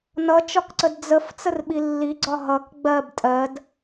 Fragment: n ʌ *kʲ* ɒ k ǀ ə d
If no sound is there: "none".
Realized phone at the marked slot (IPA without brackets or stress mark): t͡ʃ